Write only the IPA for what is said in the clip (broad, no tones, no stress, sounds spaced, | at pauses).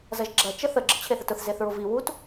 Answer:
z ɐ ʒ ɡ͡ǁ ɐ t͡ʃ ə θ ə ɡ͡ǁ ə t͡ɕʰ e θ ə t ʊ θ z e θ ɹ ʊ v i w u t